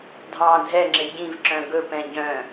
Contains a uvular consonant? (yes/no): no